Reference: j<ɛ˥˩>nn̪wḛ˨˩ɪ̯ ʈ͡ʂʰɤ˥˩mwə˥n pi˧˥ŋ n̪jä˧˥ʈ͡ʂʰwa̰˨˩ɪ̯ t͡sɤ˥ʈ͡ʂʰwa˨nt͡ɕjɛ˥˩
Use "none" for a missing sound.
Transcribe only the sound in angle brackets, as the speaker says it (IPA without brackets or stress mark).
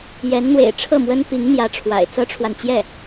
ɛ˧˥